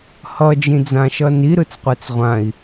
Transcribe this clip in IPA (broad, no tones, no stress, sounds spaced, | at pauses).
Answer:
h ʌ d͡ʒ ĩ d͡z ã ʃ ʌ n i ɾ ɯ t͡s qʷ ɛ t͡s ʁʷ ã i̯